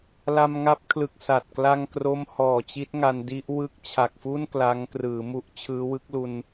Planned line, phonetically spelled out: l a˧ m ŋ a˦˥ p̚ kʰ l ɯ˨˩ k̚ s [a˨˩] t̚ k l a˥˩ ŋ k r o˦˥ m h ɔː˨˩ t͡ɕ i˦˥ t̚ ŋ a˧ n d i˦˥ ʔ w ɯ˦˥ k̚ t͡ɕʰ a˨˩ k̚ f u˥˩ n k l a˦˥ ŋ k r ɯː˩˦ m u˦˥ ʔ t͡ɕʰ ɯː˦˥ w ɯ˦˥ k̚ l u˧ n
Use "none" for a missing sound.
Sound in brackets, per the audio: a˨˩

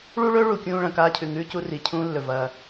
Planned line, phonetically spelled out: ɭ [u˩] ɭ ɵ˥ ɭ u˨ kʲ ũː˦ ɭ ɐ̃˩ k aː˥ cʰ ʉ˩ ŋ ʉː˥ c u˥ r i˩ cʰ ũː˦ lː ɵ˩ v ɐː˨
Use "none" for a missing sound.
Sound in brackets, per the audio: u˥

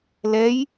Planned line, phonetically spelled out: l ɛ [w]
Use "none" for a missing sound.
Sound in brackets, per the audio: j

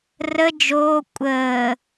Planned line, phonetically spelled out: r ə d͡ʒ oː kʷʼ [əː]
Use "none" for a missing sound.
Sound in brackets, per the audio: əː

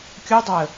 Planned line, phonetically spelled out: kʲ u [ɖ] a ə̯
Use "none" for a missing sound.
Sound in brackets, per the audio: dˤ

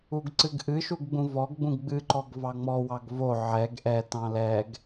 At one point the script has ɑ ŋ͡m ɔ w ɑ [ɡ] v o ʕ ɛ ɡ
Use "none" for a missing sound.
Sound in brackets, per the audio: ɡ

